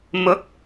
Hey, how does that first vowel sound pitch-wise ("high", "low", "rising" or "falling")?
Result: rising